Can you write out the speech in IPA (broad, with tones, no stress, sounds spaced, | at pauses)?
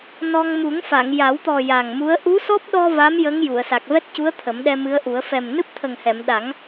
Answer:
n ɔ˧ ŋ m u˨˩˦ ŋ f a˨˩˨ ŋ j a˨˩˦ w t̪ ɔ˨˩ j a˨˩ ŋ m u˧˥ ə̯ ʔ u˧˥ s ɔ˦˥ p̚ ɗ ɔ˧ v a˧˥ m j ə˧˥ ŋ j u˨˩˨ ə̯ s a˨˩ k̚ v ɛ˦˥ t̚ c u˧˥ ə̯ t̪ʰ ə˨˩˦ m ɗ ɛ˧ m ɨ˧˥ ə̯ ʔ u˨˩˦ ə̯ f ɛ˨˩ m n ɨ˦˥ p̚ t̪ʰ ə˨˩ ŋ h ɛ˨˩˨ m ɗ a˨˩˦ ŋ